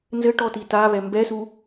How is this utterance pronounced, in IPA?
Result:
nzɘʈɔti taβɛ mbɛsu

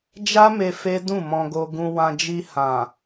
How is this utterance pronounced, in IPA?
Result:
d͡ʒa˦me˧ fe˦dũ˦˨mɔ̃˧ɡo˧ ɡũ˧wã˧ d͡ʒi˧hã˨

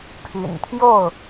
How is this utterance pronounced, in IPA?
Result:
pʰy̰˨˩nt̪ʰjo˥˨ʊ̯

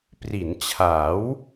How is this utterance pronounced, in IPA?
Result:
pri˩˦nt͡ɕʰa˩˦w

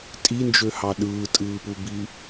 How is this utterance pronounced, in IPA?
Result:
tʼind͡ʒøhɑ ɗɯːtʼɯːpubi

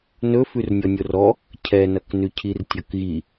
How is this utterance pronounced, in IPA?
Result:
nɵfʉrnʲɔnʲor ɔ | cʰɛnɐknʉcʰir tʲʌkɣi

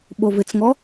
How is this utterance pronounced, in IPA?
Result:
ɓovɪt͡sŋɔ

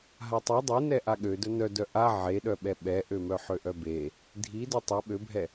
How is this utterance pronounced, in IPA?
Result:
ɦatˤi dˤenɛʔa ɠødœ nœdœ ʔa ʕeɗœɓɛ ɓɛʔømœ ħøʔœbe | dʱi dœtˤœ ɓøbʱɛ

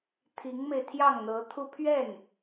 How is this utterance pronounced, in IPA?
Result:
t̪ʰi˧˥ŋme˧ɪ̯ t̪ʰjɑ˥˩ŋn̪ɤ˧˥t̪ʰu˥˧ pʰɥɛ˥˩n

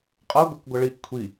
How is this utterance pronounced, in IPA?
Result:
qʼʌ ɡʷɛkɡʷʌɭiʔ kʷʰi

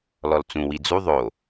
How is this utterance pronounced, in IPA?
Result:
lɔlt͡sũ wid͡zu ðˤo

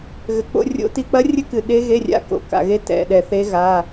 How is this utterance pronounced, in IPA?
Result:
ɣɘ˨k͡po̰˧˥˧rʲo̰˦˥ti˧˥˧ k͡pɐ˦˥rʲɘ˦˥kɨ˨ ɗe˦˥ɣe˧˥˧rʲa̰˧˥˧ ko̰˨ka̰˨ɣe˦˥ tɛ̰˨ ɗɛ˨θe˦˥ ɣa˧˥˧

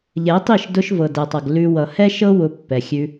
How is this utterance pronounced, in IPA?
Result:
ʎɛ˨˦tˤi˦˨ʃ dʊ˧ʃvɤ˨dɛ˨tˤʌ˨ɡ lʉ˧ wʌ˨hɛ˦ʃɤ˦ wʊ˧pːɛ˨xʲʉ˧

